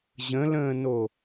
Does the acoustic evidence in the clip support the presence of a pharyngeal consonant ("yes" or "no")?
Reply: no